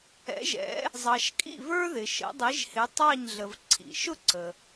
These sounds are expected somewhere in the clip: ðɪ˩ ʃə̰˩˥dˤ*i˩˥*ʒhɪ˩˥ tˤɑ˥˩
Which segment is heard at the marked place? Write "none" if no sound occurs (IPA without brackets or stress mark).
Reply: i˩˥